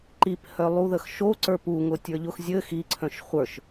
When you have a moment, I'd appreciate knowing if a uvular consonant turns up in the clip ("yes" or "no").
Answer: yes